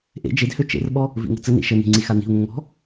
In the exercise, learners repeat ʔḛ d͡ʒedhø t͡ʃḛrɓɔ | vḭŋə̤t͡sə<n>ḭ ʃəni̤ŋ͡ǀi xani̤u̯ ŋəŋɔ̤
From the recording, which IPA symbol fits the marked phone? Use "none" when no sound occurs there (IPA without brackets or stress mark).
n